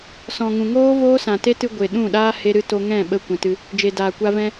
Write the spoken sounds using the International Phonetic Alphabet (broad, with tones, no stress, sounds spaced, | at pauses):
s ɔ̃˨ ŋ ũ˨ ŋ oː˦ v oː˦ s ã˨ t e˦ t ɨ˧ ɡʷ e˨ ɗ ũ˦˨ ɗ aː˦ h e˦ ɾ ɨ˦ t o˧ ŋ ɛ̃˦˨ ɓ ə˦ kʷ ɛ̃˧ t ɨ˧ | d͡ʒ e˨ d aː˨ kʷ a˧ v ɛ̃˧